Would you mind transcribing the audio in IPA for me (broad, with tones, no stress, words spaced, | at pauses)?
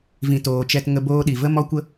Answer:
vĩ˨toː˨t͡ʃɛ˧t ŋə˧boː˧ɗi˨və˦ mɔ˦kʷə˦